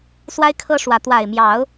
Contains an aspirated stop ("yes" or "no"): yes